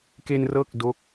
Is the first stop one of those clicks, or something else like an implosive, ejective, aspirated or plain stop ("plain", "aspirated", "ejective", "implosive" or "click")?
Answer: plain